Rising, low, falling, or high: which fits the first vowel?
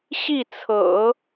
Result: falling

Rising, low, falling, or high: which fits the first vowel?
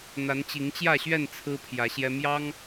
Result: rising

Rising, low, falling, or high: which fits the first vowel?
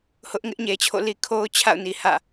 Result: high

